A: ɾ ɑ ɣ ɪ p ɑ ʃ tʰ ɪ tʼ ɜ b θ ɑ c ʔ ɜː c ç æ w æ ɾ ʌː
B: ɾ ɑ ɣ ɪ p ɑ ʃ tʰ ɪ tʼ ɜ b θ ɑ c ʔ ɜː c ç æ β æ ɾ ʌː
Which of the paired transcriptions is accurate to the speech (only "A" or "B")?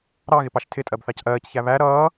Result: B